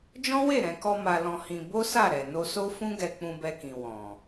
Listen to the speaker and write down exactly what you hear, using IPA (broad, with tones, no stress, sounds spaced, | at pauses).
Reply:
d͡ʒ ɔ̃˦ w e˦˨ ɾ ɛ̃˨ k ɔ˧ m a˧ l ɔ̃˧ h ĩ˧ b o˦ s a˦˨ ɾ ɛ˨ n o˧ s o˦ f ũ˦ ɡ ɛ˧ k͡p ũ˧ b ɛ˧ k ĩ˨ w ɔ̃˨